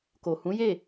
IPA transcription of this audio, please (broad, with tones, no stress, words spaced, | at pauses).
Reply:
ko˨ hũ˨˦je˦˨